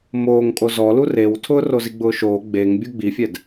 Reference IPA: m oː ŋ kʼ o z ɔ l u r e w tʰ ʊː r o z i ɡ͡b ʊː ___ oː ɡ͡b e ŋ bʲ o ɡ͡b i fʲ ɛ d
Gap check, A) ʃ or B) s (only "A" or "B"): A